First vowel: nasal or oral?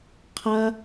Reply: oral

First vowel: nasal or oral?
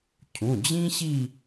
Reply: nasal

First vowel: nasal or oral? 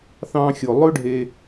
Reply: nasal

